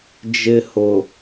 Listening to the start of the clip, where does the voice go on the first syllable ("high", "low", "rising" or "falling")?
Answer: high